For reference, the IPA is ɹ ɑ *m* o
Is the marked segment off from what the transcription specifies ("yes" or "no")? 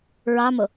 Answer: no